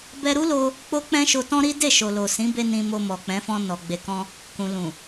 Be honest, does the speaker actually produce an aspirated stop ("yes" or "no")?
no